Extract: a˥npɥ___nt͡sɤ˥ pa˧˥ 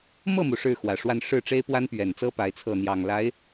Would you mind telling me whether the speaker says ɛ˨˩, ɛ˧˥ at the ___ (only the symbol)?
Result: ɛ˨˩